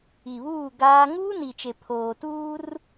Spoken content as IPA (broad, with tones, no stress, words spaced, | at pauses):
i˨βuː˦˨ ɡaː˦ ŋuː˦ni˨t͡ʃe˨ pʰoː˨tuː˦r